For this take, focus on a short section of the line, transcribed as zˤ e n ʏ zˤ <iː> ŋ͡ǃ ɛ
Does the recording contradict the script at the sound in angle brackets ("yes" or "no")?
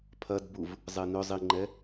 yes